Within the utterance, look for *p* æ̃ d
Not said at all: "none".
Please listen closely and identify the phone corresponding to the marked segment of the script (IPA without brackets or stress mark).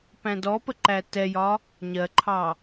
p